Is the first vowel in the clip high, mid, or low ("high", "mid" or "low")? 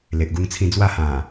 mid